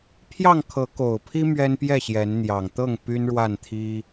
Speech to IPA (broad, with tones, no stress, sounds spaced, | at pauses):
pʰ j ɑ˥˨ ŋ kʰ ɤ˨˦ k o˨˩ ʊ̯ pʰ i˦ m ɥ ɛ˦ n p j ɛ˥˨ ɕ j ɛ˨˦ n n̪ j ɑ˨˩ ŋ t̪ ɤ˥˨ ŋ p y˦ n ɻ w a˥˨ n t̪ʰ i˦